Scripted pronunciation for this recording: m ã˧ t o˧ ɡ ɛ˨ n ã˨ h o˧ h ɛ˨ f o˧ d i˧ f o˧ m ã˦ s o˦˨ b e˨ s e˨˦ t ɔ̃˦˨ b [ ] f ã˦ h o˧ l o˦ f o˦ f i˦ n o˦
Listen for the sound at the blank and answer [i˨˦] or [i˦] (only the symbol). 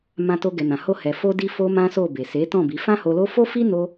i˨˦